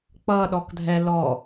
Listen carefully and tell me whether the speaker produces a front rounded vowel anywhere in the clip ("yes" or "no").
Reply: no